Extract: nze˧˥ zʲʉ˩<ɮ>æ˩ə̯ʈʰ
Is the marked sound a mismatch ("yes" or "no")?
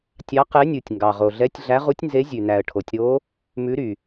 yes